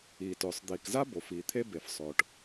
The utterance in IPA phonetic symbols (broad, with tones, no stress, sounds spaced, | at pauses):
iː˩ t ʊː˩ sˤ d̪ iː˩ k z a˥ b o˩ f iː˩ t̪ʰ e˥ b e˩ f sˤ ʊː˩ ʈ